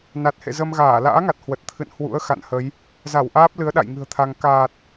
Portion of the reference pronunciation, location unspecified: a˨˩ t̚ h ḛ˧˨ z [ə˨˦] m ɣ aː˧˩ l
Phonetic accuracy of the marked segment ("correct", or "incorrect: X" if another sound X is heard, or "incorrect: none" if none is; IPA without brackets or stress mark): incorrect: ə˧